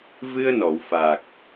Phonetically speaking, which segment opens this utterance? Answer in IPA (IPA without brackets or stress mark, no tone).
v